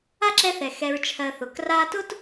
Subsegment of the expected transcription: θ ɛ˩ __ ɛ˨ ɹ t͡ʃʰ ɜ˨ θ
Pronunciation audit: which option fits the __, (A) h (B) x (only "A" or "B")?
B